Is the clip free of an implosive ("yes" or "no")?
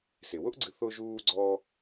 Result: yes